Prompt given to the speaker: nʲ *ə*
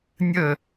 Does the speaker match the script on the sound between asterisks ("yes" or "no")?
yes